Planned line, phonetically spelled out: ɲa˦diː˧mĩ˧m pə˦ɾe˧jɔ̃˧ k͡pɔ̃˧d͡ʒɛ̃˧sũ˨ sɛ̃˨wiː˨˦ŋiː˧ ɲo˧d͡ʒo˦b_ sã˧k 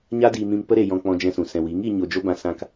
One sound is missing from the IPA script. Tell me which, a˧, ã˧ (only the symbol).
ã˧